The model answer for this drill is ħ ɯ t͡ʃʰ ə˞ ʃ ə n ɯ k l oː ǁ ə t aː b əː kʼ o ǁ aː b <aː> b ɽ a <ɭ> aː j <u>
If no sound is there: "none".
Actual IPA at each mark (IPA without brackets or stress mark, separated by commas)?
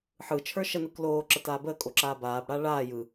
aː, ɭ, ɯ